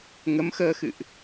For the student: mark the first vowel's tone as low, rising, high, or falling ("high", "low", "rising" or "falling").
rising